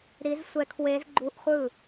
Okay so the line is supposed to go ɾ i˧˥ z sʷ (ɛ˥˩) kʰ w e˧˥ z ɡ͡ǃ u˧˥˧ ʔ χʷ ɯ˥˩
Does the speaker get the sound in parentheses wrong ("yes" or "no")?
yes